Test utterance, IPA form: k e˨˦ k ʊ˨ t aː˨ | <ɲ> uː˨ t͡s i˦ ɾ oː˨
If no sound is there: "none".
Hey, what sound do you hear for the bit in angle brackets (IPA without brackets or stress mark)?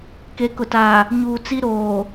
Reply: ɲ